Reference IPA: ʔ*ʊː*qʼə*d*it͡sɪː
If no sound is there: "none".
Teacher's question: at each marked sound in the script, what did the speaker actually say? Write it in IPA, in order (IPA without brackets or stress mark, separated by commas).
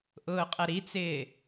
ʊː, ɾ